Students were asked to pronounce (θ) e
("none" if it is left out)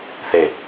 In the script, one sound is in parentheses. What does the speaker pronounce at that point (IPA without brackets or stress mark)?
θ